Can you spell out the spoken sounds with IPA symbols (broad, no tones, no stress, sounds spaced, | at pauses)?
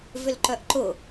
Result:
v ʏ l ǃ œ ʔ ǃ ʊ